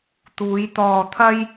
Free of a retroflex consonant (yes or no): yes